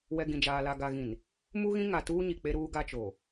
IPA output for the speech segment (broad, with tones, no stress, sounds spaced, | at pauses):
w ɛ˨ ɡ ĩ˨ d͡ʒ aː˨ l a˨ ɡ a˨ ɣ ĩ˨ n | m u˦ ɣ ĩ˦ ŋ a˨ t uː˦ ɲ i˨ k͡p e˦ ɾ uː˦ ɡ a˦ t͡ʃ o˨